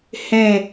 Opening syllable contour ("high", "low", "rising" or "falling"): falling